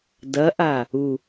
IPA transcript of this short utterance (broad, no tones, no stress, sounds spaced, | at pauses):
d ɐ ʔ a | u